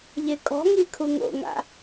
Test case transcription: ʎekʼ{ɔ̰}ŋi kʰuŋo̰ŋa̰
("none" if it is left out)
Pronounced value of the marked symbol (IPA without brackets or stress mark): ɔ̤